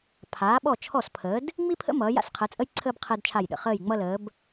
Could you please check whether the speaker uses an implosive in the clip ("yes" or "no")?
yes